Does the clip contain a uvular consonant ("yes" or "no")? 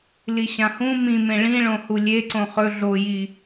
yes